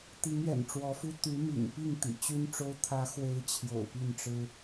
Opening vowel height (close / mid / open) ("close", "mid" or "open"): close